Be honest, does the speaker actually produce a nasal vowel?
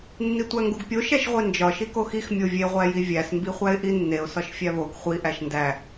no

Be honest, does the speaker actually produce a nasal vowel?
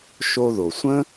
yes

